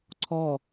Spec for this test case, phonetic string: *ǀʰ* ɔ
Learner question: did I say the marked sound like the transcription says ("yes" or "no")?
yes